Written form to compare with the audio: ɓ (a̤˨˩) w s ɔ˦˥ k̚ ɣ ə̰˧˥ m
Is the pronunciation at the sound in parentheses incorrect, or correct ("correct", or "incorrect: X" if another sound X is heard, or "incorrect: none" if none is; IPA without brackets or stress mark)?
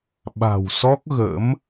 correct